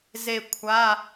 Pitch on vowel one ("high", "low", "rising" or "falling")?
falling